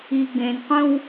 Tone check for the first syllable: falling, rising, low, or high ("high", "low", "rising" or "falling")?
low